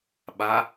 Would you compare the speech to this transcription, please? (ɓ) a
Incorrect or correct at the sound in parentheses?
correct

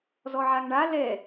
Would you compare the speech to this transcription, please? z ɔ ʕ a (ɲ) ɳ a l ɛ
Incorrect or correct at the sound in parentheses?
incorrect: ŋ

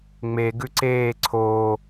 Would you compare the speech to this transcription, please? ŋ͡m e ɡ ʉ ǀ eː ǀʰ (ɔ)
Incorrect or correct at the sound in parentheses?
incorrect: o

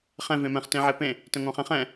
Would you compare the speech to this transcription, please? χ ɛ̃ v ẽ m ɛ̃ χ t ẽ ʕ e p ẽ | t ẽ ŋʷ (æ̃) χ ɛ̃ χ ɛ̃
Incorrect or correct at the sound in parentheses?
correct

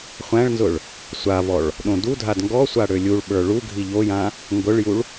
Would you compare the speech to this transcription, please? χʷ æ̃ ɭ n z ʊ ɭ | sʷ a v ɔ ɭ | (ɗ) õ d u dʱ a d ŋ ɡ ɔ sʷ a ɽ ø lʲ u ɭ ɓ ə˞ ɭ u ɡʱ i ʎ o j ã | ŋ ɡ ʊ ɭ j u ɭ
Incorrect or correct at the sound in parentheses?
correct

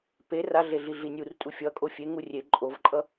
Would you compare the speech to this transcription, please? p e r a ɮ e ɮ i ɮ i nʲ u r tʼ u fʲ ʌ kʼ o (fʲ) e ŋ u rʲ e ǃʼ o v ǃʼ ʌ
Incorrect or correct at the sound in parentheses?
correct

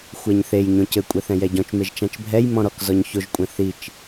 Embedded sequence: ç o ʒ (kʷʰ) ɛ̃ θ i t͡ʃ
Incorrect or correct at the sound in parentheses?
incorrect: kʷʼ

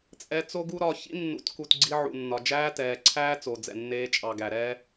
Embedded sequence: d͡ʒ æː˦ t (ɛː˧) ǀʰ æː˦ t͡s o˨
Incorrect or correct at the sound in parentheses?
incorrect: ɛː˨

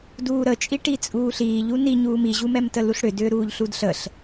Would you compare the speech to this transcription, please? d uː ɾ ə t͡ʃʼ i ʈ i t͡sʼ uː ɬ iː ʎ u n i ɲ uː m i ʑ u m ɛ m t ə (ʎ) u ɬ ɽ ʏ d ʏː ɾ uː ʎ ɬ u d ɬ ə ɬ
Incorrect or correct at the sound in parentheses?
incorrect: l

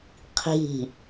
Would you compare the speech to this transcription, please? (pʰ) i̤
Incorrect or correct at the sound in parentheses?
incorrect: qʰ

